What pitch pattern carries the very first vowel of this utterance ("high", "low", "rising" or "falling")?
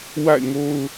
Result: falling